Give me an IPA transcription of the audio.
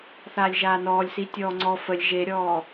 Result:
θaːlʲʒaːnɔːlʲ sitʲɔːŋ͡ǀɔ fəlʲ ʒeɾʲɔː

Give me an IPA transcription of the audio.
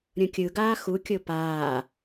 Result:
ɾʲõkʲɯɡaː xukʲo paː

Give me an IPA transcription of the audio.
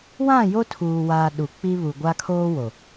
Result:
wã˦˨jo˦tʰuː˨waː˨ ɗu˨k͡pi˦βu˨ɡʷa˦ kʰoː˦wo˨

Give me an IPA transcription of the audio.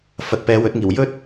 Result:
fɐ˨t̚pɛː˨˧wɵ˨˥t̚ŋiː˨˩w jɵ˥t̚

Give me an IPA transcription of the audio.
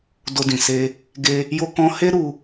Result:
do˧dĩ˨se˧ | ɡe˧ | jo˧kɔ̃˧he˦ ɾu˦

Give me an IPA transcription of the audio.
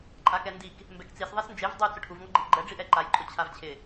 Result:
ǃʼakɛndik | mbɛkt͡sis ðˤesnd͡ʒev dˤu t͡sʊʈʰuv ŋɔɡ͡ǃiʔɡ͡ǃɛ ɖ͡ʐiʔɛǃaj ǃʼʊt͡ɕʰavt͡ɕʰɪ

